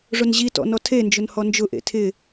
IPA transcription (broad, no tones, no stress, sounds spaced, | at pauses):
ʐ ʊ n ʑ i t ɔ̰ n ɔ tʰ e n d͡ʒ ʊ n h ɔ n d͡ʒ ʊ ʔ ḛ tʰ ɪ